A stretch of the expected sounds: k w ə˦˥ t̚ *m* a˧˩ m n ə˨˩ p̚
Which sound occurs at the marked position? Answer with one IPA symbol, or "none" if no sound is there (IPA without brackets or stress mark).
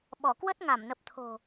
ŋ